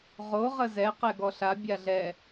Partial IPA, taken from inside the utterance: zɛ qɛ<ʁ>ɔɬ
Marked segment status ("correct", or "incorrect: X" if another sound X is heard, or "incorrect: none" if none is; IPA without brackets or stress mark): incorrect: ɡ